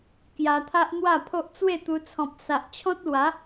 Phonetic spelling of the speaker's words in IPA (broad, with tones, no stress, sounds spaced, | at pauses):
k j a˧ t̪ʰ a˦ ʔ n̪ w a˥˧ pʰ o˦ ʔ t͡s w e˥˧ t̪ u˧ t͡sʰ ɔ̃˨ p̚ s a˨ ʔ t͡ɕʰ ɔ̃˦ t̚ l w a˨˦